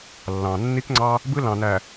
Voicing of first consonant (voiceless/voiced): voiced